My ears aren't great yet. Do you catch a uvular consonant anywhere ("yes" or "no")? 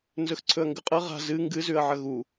yes